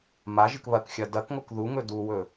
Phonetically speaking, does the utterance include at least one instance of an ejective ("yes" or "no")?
no